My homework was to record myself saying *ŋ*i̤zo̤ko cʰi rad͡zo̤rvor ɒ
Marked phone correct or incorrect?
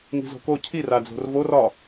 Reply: correct